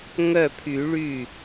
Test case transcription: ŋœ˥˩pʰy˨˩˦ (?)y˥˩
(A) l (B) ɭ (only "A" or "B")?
B